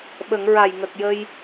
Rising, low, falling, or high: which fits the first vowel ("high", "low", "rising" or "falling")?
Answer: low